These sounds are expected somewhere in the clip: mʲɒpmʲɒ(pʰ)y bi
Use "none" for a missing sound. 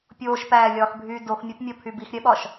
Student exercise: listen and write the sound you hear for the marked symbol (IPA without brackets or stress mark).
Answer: pʰ